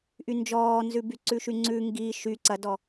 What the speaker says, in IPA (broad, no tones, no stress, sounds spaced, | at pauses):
ʔ y n d͡ʒ ɔː n z ʉ b y ǀ ʉ ʃ y ŋ͡ǀ ʉ ŋ ɡ i ʃ y ǀ ɐ d ɔ